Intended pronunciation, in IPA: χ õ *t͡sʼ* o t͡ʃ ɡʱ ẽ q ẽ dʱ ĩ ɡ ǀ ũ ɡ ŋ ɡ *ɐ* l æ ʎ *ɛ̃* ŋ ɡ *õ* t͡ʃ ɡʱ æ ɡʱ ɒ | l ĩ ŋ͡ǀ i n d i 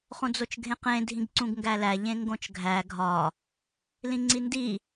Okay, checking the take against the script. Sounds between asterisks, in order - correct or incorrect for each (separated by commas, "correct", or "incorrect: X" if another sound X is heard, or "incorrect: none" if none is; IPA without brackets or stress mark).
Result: incorrect: d͡z, incorrect: æ, incorrect: ẽ, correct